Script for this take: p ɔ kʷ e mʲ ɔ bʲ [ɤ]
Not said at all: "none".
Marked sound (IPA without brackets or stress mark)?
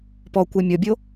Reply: o